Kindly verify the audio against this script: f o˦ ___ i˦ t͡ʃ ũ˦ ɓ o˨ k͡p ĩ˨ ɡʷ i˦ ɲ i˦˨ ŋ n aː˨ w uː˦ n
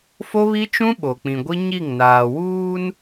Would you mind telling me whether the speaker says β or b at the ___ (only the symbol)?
β